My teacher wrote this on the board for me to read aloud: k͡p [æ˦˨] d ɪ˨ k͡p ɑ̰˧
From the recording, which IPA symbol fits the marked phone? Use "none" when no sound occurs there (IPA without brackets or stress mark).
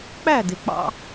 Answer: æ˦˨